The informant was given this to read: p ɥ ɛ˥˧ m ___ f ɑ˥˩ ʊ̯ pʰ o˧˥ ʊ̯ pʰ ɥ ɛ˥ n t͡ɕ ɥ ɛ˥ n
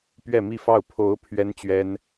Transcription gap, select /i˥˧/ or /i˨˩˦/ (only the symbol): i˥˧